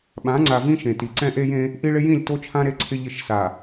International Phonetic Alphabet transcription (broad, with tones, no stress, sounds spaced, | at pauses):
ɓ ã˨˦ ŋ͡ǀ a˨ v ĩ˦ ʃ ẽ˨ t i˨ ǀ ɛ̃˦ ʔ e˦ j ẽ˦ | ʔ i˦ ɭ ɪ˦ j ĩ˦˨ lʲ t o˦ t͡ʃʰ ã˦ ɾ e˦ ǀʰ ɪ˦ ʎ ɪ˦˨ ʃ s a˨